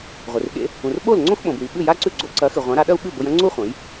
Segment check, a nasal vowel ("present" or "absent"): present